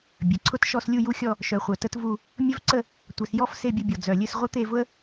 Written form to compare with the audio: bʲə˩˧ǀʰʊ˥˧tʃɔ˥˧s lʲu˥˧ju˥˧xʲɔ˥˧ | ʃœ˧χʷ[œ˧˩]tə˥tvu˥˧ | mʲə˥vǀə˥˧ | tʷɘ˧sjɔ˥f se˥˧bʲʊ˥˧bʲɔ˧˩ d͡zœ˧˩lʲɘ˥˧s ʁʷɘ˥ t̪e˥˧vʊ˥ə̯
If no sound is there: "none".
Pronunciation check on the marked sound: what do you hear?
œ˧˩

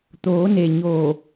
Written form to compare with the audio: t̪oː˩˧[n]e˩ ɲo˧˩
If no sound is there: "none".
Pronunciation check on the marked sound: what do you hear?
n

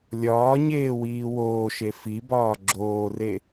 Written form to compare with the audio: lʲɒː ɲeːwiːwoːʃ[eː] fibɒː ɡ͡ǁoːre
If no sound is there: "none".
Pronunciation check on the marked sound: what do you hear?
e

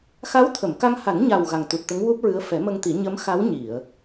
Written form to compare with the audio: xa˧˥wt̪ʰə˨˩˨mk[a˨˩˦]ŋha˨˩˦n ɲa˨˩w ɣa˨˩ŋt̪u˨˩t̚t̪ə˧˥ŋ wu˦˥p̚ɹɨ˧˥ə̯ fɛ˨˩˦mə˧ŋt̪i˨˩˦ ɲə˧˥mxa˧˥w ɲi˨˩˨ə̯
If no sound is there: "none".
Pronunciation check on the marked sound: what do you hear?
a˧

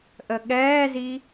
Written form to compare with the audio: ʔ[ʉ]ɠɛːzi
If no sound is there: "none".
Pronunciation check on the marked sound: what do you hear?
ə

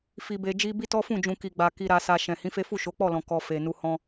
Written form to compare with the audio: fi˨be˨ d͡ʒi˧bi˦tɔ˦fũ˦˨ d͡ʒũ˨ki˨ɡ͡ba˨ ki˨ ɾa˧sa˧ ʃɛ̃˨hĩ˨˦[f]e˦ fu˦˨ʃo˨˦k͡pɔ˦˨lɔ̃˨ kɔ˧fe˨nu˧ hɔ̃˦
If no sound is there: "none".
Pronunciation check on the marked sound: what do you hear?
f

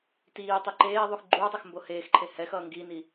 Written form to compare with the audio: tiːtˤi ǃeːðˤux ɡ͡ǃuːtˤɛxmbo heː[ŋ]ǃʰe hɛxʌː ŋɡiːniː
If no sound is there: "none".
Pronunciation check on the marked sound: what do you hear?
x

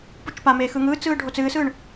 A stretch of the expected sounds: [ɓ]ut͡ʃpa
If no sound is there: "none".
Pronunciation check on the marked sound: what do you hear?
p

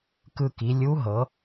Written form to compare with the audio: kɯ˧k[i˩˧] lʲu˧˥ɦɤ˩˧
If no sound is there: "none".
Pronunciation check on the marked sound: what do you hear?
i˩˧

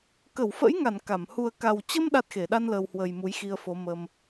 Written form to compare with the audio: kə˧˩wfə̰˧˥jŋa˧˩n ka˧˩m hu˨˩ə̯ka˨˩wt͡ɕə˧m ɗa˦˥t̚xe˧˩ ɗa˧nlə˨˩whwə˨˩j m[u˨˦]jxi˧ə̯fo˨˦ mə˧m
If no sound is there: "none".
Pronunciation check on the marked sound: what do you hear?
u˨˦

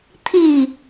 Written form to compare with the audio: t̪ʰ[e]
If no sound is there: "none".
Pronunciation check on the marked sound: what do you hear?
i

